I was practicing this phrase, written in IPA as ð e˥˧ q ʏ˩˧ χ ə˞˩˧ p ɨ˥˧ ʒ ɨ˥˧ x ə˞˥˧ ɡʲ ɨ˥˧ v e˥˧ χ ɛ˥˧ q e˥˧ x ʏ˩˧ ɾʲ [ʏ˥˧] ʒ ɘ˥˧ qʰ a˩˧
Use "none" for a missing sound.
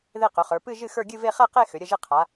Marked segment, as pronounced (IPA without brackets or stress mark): ə˥˧